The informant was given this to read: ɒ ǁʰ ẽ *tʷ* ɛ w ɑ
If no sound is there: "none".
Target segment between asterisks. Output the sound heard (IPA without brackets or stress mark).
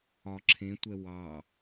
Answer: tʷ